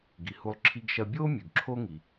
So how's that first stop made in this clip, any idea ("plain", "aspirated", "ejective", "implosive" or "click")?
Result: plain